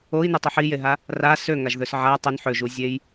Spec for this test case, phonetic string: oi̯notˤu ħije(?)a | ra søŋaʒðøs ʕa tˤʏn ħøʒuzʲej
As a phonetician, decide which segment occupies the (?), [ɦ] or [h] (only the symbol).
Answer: ɦ